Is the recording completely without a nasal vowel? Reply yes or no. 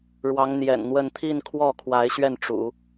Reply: yes